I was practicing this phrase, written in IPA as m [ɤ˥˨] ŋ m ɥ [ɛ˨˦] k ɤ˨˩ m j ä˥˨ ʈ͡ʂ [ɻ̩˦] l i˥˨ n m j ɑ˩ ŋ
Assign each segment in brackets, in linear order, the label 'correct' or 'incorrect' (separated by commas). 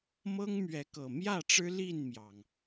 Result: incorrect, correct, correct